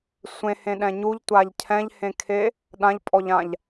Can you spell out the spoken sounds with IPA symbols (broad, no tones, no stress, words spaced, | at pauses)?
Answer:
sʷẽhẽɗɛ̃ ɲuʎtʷaʎ cʰɛ̃ʎhẽkʰe | ɗãʎpʼɔʎãʎ